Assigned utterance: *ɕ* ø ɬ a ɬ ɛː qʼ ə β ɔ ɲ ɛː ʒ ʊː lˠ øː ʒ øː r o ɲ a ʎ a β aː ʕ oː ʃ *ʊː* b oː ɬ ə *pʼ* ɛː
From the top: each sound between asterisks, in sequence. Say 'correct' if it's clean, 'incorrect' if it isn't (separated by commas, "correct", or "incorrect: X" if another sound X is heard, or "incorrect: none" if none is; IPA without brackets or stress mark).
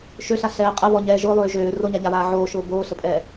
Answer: incorrect: ʃ, correct, correct